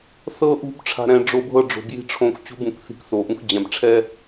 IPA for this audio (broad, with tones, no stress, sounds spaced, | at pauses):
θ ɤ˨ ʔ ṳ˨ b ʈ͡ʂʰ a̤˨ ɾ ɛ̃˨ ɖ͡ʐ o˨ bʱ ɤ˦˨ ɖ͡ʐ o̤˨ b j i̤˦ ʈ͡ʂʰ õ˦˨ k t͡ɕ ṳ˦ b ũ˨ k θ i̤˨ k θ o˨ ʔ ũ˦ k d͡ʑ ɛ̃˨ b ʈ͡ʂʰ ɛ˦